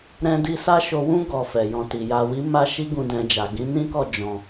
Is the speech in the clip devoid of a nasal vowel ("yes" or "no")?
no